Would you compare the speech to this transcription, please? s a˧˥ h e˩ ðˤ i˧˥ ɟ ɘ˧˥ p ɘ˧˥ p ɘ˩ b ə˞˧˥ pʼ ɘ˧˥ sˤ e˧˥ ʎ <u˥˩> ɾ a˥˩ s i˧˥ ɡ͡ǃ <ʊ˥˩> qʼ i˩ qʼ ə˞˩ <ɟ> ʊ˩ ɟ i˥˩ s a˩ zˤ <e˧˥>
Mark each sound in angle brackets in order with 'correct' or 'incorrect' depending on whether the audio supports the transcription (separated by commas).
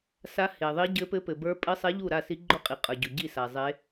correct, correct, correct, correct